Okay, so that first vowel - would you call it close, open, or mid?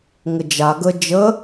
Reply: mid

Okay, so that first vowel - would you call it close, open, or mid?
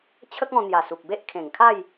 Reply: mid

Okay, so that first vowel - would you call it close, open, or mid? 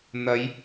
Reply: open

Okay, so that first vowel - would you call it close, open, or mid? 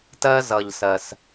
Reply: mid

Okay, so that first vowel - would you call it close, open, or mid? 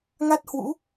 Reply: open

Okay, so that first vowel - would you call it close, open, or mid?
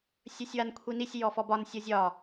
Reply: mid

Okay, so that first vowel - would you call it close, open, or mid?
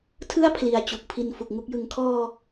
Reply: close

